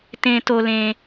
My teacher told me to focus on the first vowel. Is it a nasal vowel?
yes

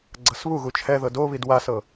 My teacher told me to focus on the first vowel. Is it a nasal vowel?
no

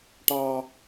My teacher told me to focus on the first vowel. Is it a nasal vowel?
no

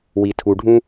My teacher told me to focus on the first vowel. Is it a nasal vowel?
no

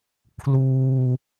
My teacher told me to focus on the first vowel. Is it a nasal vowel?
no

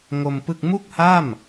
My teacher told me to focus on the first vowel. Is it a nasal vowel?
no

